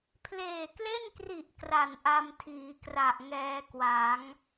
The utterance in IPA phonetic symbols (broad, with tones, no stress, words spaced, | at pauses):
pʰleː˨˩kle˥˩nkri˨˩ʔ kra˨˩n ʔa˧mtʰiː˩˦kra˨˩ʔ ŋɛː˧kwa˩˦ŋ